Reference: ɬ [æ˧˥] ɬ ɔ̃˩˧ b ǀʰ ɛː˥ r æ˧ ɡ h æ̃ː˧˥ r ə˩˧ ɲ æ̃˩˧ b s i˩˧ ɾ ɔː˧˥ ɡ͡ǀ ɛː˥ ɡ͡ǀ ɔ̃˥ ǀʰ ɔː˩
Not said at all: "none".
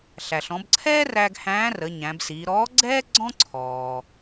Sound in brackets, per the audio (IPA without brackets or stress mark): æ˩